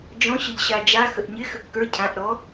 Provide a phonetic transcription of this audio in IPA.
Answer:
d͡ʒɔ̃ɕəʎ ɕad͡ʒaxəʔ ɲɪxə kːə˞ cʰãʔ ɾɔ

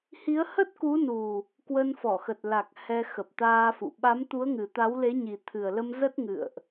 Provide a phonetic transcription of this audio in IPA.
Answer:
hi˨˦ə̯hə˦˥t̚ku˨˦nu˨˩ | kwə˧nfɔ˧˩xə˨˩t̚ la˨˩k̚ hɛ˧xə˨˩p̚t̪aː˧fṵ˧˨ ɓa˨˦mt̪u˨˦ə̯ŋɨ˨˩ t̪a˨˦wle˨˦ɲi˨˩t̪ʰɨ˨˩ə̯ lə˧mzə˦˥t̚ ŋɨ̰˧˨ə̯ʔ

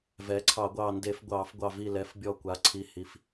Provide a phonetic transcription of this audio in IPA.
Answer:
vɛː˩˥ǀʰɑ˧˩˧ɡʷɑː˧˩nde˧˩˧f ɡʷɑː˧˩˧fɡʷɑ˧˩vi˧˩lɛ˩˥f bʲɔ˧˩kʷa˩˥ ǀʰi˩˥ hi˩˥f

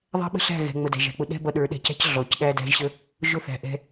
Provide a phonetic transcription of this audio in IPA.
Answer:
ðˤæ̤˦ ɓə̤˦ɬæ̤˦˨ɣɛ̤˨ ŋ͡mə˨dæ̤˨ʒæ̤˨k͡pʊ˧ ɗɛ̤˦bʌ˧ɗə˞˨˦ ɗɛ̤˨cæ̤˦c ɮɔ˨c ɗæ˧dæ̤˧ʒɕə˧ | ʒʊ˦θæ̤˨ʔɛ̤˧

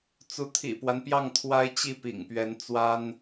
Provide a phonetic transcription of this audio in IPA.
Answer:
t͡su˧˥t̪ʰḭ˨˩pwa˦npjɑ˥˩ŋ t̪ʰwa˥ɪ̯t͡ɕi˥˩pḭ˨˩ŋ pɥɛ˧˥nt͡swa˥n

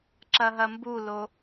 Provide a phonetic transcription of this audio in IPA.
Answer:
ǁɐɦɐmbulo

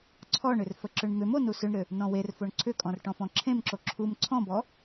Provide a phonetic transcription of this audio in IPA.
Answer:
ǀʰɔɳʏr fəǁʏɳmʏmo nusʏɳɾʏ | nɔ̃werfoɳ ǀʰʏkʼɔ̃r ʈɔ̃fɔ̃ǁʰẽmǁo ǁʰum ǀʰɔ̃bɔ

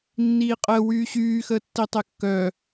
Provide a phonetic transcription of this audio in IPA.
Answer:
nːiːqʼəː wyːɕyːxəː tːitˤekːœː

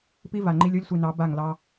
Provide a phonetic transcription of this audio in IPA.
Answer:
pi˦ va˨ŋ͡ǃi˦lʲ o˦lʲsʷi˨nɑ˨˦ ba˦˨ŋ lɑ˦

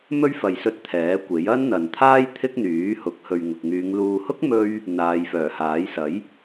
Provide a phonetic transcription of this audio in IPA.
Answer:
mɵ˥ɥ fɐ˨jsɵ˧t̚ t̪ʰɛː˨˥kʷe˨˥j ɐ˥nn̪ɐ˨n t̪ʰaː˥j t̪ʰɪ˥k̚ n̪yː˨˥hʊ˨˥k̚ hɵ˨ɥŋʊ˨k̚ŋyː˨˧ŋ luː˨hʊ˥k̚ mɵ˥ɥ | n̪aː˨˧jfœː˨˩haː˨˥j sɐ˨˥j

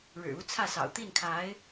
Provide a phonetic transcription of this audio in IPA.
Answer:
ɻɻ̩˨˩u˧˥t͡sʰä˥˩sɑ̰˨˩ʊ̯ t̪i˥˩nkʰa˧˥ɪ̯

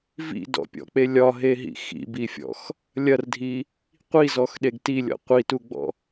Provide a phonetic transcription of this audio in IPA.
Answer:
vḭdɔ̰pʲɔ̰k͡pe lʲɒɦeɦḭ xḭbifʲɔ̰x | lʲɐrdʱi | qʷizɔxɗeɡ tilʲɔ̰ qʷituɡ͡bɔ̰

